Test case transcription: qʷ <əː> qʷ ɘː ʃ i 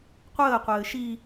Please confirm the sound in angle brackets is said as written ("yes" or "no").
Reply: yes